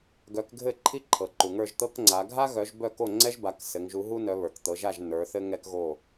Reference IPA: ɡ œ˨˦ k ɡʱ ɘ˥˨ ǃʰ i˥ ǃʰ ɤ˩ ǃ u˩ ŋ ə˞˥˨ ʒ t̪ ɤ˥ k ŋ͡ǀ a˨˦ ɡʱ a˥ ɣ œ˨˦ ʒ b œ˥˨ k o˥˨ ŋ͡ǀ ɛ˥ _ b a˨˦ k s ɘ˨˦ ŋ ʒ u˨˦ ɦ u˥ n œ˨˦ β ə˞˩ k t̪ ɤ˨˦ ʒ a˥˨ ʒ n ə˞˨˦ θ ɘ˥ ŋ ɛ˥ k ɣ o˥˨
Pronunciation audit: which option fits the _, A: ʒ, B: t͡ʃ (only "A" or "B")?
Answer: A